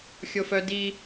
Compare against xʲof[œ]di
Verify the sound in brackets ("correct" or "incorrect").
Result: correct